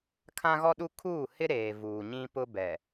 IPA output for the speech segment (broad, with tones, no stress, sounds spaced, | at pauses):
kʰ ã˦ ɣ ɔ˦ ɗ u˦ kʰ uː˦˨ h ɪ˦ ɾ eː˨ v uː˨ ɲ ĩ˦ p ʊ˦ b ɛ˨